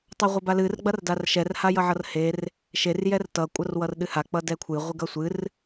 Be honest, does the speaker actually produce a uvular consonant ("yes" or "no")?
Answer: yes